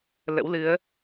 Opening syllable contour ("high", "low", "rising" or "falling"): rising